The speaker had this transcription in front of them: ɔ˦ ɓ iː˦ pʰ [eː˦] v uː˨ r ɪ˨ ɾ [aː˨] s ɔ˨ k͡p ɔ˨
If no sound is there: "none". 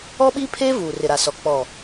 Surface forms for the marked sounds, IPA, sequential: eː˦, a˨

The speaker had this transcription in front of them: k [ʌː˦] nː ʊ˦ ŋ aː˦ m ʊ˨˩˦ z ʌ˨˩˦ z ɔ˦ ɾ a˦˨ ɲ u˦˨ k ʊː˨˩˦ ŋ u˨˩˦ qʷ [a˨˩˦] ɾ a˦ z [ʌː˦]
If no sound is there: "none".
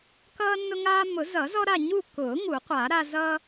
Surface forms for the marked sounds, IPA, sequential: ʌː˦, a˨˩˦, ʌː˦

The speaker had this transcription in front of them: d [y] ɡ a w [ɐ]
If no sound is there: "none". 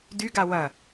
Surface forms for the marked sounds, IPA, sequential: y, ɐ

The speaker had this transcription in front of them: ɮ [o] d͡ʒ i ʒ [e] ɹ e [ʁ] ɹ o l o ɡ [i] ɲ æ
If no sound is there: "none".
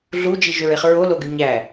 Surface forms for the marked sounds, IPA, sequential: u, ø, χ, y

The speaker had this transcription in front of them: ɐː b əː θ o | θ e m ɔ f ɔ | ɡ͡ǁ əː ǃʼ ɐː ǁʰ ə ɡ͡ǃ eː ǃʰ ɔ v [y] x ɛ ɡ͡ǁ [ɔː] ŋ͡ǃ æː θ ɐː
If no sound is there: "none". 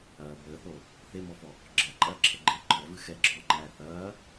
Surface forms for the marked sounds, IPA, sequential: ɨ, ɔː

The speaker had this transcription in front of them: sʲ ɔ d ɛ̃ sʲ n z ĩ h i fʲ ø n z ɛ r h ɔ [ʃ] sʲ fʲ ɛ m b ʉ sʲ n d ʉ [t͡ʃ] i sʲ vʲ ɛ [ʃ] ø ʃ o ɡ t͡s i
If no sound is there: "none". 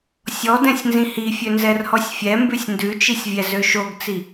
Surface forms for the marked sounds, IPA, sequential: none, t͡ʃ, z

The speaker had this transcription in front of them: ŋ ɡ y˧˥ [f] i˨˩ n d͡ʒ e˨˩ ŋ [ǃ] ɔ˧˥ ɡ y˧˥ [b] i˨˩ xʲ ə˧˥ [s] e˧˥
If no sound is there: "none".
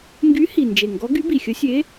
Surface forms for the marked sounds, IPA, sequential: h, ɡ, b, sʲ

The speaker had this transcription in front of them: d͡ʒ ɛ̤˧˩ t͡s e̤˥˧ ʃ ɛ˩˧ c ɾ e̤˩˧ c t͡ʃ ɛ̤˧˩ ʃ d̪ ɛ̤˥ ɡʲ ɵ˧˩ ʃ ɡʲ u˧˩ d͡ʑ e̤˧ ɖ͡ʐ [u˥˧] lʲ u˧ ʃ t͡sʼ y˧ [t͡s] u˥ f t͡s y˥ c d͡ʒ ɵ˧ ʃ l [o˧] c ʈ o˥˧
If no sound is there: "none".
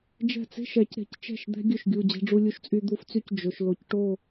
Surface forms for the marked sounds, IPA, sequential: u˧, d̪, o˧

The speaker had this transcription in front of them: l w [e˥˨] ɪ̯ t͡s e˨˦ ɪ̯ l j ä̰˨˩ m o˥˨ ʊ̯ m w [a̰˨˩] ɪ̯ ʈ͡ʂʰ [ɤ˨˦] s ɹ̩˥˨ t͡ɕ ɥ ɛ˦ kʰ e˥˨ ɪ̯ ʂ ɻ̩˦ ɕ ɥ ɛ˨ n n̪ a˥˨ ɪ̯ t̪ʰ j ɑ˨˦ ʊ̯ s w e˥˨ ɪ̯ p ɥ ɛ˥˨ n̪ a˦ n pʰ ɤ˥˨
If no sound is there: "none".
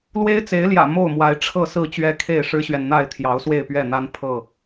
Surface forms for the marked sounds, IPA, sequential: e˦, a˨˦, ɤ˥˨

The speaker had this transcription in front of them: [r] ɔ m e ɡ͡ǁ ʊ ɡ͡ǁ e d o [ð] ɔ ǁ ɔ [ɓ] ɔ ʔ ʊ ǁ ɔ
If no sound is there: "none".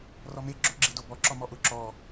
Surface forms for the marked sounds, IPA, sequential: r, b, m

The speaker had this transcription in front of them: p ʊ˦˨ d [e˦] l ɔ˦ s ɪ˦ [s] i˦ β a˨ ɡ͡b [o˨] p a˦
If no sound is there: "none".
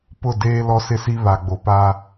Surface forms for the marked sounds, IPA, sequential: eː˦, s, o˨

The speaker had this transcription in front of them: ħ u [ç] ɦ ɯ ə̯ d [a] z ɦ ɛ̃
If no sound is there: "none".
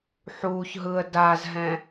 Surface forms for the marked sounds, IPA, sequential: ç, a

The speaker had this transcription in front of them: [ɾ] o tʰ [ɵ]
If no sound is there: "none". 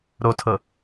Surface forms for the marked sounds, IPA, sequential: ɾ, ɤ

